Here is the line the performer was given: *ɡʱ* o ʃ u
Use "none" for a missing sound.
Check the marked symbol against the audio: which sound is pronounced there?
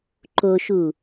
ǃ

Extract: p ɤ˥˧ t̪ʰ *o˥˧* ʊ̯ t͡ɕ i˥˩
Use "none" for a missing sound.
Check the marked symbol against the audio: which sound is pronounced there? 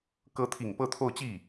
o˥˧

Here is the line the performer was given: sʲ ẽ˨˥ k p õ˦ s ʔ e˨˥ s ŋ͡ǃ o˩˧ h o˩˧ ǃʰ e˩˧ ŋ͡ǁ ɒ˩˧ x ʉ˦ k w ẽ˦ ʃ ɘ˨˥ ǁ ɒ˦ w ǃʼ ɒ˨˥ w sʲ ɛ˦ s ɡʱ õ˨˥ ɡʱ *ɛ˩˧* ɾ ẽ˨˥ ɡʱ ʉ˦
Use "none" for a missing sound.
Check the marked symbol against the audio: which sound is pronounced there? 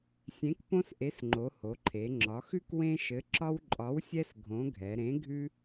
ɛ˩˧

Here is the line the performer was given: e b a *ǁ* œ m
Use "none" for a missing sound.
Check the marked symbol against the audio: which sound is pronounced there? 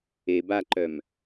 ǃ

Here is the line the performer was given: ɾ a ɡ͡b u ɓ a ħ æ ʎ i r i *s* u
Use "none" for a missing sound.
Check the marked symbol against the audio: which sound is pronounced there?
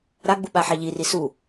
s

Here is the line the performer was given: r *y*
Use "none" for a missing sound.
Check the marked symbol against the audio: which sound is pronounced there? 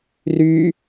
y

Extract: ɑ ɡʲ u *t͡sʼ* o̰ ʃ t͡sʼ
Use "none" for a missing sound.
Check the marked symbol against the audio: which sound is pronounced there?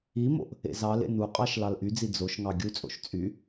t͡sʼ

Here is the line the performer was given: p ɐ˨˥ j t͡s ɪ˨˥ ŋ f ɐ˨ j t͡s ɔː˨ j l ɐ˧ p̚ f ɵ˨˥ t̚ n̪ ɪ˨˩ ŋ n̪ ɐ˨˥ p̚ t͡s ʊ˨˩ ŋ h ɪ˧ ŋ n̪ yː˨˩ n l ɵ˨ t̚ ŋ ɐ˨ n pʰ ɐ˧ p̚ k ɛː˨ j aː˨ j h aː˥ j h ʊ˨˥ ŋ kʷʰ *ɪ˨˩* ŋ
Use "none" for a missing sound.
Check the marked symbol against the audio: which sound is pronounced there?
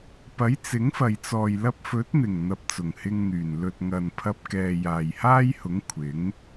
ɪ˨˥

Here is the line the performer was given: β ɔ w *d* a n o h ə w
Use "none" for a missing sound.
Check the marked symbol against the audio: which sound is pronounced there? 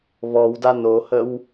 d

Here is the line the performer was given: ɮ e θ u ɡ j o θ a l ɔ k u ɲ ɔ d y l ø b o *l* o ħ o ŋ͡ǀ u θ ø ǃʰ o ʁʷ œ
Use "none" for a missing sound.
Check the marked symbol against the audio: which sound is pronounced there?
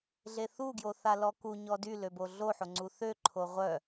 ɮ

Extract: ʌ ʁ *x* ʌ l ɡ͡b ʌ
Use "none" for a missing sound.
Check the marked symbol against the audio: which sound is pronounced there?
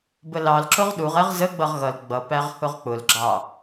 ɣ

